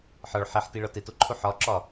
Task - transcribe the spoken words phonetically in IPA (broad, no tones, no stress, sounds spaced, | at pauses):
ħ ɒ ɭ ħ e ħ t i ɭ ɒ t e t o ǃʰ u ħ ɒ ǁ ɒ